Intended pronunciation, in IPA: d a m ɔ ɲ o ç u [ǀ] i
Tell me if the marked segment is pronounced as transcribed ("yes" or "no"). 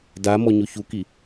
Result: no